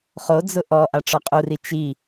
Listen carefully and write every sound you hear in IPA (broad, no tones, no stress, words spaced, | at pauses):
χo d͡zʊʔɔ ʔaʈ͡ʂɔqʼuri t͡ʃi